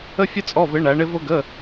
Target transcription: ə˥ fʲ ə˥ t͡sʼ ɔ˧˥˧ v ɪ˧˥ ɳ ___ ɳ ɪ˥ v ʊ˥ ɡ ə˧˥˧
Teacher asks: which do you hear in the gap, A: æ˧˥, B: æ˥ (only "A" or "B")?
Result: A